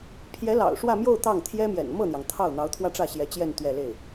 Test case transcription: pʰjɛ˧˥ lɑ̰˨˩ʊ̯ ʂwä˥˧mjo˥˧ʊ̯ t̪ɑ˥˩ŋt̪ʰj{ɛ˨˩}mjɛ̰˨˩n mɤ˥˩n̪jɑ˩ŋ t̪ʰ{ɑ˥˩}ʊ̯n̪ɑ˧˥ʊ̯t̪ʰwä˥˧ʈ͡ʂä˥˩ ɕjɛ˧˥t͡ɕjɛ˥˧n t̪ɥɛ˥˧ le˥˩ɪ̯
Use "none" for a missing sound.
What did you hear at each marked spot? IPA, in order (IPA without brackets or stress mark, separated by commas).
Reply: ɛ˥, ɑ˥˩